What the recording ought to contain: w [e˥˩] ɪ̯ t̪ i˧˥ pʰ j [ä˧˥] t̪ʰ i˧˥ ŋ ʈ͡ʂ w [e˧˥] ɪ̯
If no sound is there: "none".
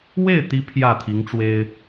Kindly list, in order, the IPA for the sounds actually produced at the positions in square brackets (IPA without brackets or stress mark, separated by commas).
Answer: e˥˩, ä˥˩, e˥